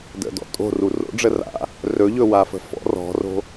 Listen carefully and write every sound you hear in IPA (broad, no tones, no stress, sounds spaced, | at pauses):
d ə̰ d ɔ̰ tʼ o̤ r u r o̰ ɖ͡ʐ ə r a̰ | r ɵ ʎ ɵ w a f ə̤ f ɔ̰ r ɔ̤ r o̤